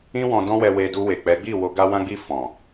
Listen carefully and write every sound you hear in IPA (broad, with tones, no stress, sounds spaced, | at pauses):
ĩ˦ w ɔ̃˧ d ɔ̃˦ w ɛ˧ w e˧ d u˧ w e˨ k͡p ɛ˨˦ ɡ͡b i˦˨ w o˧ ɡ a˧ w ã˧ ɡ͡b i˧ f ɔ̃˨